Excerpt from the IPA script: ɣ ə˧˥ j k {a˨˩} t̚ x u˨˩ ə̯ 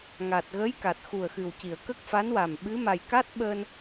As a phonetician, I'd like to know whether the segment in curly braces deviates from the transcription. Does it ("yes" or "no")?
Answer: no